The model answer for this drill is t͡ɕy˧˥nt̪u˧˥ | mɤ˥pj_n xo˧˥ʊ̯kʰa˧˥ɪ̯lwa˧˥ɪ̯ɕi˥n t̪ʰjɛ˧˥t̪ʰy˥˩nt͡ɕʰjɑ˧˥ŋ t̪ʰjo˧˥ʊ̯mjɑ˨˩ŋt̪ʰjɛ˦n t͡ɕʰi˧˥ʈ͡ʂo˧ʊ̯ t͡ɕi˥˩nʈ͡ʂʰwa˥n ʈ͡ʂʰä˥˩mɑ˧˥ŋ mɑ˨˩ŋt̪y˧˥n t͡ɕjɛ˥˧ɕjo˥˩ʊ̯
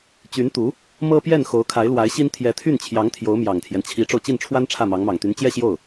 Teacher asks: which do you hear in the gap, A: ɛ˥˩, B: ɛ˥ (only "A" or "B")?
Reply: A